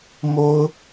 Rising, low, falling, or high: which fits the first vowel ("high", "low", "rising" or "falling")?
high